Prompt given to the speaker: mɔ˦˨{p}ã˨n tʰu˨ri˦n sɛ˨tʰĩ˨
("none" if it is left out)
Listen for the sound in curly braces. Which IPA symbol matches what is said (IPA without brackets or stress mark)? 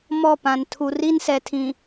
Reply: p